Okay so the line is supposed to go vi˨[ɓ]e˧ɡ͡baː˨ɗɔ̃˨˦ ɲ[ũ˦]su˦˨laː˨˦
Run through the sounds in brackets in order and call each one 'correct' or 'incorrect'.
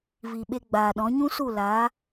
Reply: correct, correct

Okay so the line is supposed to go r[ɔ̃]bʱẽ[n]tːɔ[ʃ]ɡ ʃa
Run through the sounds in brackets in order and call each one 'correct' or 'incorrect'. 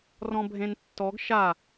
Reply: correct, correct, incorrect: none

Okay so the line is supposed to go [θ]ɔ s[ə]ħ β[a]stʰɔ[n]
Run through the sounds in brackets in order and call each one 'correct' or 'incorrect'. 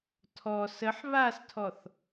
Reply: incorrect: tʰ, correct, correct, incorrect: θ

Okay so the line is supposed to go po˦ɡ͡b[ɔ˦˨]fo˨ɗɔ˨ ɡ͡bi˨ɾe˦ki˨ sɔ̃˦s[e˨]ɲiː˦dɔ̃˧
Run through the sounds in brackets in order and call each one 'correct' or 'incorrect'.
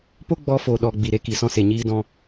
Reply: incorrect: ɔ˧, correct

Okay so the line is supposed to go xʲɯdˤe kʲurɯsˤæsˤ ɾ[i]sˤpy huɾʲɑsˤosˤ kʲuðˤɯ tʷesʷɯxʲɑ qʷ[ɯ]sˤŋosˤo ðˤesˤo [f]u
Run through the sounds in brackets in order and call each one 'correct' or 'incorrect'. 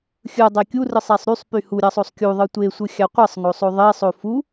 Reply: incorrect: y, correct, correct

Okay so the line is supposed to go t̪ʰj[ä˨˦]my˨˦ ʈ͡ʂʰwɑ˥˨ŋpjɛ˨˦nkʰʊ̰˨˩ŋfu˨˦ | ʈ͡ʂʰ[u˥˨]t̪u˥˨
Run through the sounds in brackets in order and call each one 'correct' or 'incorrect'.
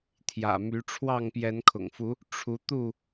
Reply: incorrect: ä̰˨˩, incorrect: u˨˦

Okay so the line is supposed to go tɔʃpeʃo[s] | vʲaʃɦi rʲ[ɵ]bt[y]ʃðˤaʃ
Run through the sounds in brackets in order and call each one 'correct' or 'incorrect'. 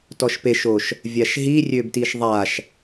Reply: incorrect: ʃ, incorrect: ø, incorrect: i

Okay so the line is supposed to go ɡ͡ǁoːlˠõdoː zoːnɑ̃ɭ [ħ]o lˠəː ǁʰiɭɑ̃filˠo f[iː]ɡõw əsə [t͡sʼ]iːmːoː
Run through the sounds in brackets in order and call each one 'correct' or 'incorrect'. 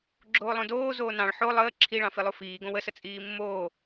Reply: correct, correct, correct

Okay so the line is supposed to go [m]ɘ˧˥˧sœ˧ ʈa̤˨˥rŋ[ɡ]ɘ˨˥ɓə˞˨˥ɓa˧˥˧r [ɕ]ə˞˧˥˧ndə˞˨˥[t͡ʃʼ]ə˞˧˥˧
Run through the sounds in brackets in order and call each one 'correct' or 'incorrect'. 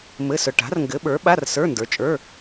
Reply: correct, correct, incorrect: s, correct

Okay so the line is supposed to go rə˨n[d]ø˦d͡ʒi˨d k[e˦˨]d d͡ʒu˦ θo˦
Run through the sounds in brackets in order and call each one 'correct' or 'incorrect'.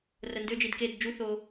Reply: correct, correct

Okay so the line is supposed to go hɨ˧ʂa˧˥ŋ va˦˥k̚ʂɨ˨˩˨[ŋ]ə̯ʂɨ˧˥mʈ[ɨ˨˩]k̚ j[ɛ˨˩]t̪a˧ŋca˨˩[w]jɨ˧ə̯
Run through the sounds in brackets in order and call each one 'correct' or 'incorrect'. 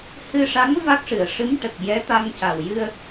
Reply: incorrect: none, incorrect: ə˨˩, incorrect: ɛ˧˥, correct

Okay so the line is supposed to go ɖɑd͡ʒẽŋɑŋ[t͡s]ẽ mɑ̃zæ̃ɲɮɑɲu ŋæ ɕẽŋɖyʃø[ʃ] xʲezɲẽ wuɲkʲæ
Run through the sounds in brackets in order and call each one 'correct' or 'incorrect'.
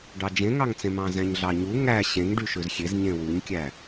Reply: correct, incorrect: z

